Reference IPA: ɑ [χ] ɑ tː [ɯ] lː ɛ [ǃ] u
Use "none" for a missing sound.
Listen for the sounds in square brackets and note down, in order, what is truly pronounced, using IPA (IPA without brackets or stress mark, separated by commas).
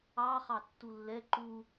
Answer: χ, u, ǃ